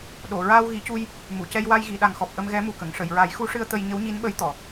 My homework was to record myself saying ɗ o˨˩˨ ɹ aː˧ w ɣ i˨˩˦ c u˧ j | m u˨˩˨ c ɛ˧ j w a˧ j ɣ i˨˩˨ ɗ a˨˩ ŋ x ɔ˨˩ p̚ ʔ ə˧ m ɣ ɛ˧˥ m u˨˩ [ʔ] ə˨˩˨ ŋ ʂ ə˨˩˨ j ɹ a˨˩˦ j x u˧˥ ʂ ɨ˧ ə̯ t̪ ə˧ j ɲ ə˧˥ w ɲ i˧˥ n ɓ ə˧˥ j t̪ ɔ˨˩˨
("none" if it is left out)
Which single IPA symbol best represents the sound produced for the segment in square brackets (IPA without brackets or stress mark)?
k